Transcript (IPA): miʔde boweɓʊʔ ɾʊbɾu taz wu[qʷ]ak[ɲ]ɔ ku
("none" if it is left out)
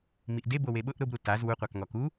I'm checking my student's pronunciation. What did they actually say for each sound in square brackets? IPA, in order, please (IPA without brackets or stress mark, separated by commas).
qʷ, ŋ